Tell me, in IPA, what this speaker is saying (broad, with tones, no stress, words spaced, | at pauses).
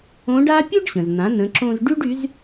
õ˧˥ɖa˥ pʲo˥ɖɕə̃˩zn̪ã˩˧ nə̃˩˧ǁõ˧zɖy˥ɖ y˩˧z